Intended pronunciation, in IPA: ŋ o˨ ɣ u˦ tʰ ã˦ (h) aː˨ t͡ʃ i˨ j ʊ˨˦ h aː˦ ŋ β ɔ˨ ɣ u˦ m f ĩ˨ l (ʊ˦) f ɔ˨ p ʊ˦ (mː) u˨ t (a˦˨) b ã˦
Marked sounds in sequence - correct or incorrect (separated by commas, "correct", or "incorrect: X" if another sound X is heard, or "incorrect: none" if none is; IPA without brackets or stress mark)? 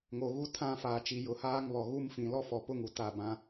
incorrect: f, incorrect: ɔ˦, incorrect: ŋ, correct